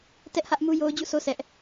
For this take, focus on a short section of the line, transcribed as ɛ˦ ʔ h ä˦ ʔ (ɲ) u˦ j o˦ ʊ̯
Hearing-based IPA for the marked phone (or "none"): m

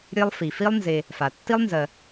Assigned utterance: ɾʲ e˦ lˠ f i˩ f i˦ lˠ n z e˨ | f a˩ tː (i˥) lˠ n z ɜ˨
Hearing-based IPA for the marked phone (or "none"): i˥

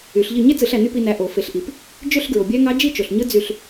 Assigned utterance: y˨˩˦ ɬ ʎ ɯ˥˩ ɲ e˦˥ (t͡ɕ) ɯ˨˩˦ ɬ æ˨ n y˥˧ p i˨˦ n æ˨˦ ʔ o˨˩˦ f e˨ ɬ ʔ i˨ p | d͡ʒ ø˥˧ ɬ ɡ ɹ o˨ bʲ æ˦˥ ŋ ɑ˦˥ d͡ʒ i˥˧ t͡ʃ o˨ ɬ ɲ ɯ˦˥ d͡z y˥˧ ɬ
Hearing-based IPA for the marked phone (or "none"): t͡s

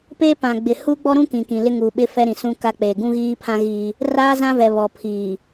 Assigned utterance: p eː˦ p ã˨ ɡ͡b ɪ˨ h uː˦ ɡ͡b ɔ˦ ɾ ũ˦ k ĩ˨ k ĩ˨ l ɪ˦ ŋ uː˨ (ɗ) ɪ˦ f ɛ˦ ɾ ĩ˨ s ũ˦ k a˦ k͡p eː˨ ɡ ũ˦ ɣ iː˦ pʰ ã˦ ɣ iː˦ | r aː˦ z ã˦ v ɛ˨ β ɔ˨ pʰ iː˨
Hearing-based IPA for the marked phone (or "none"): ɓ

